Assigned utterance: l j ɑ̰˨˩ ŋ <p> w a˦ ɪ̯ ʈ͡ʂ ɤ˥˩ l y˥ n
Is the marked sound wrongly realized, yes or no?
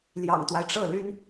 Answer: yes